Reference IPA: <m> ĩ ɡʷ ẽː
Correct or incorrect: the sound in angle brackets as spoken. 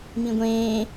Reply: correct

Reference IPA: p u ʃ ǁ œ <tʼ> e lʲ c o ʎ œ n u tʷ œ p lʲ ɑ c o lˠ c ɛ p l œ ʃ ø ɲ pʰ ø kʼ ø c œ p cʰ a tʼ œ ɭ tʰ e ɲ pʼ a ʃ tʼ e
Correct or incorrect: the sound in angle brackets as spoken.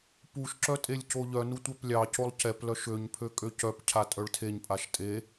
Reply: correct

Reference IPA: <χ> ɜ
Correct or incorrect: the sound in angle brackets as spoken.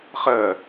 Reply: correct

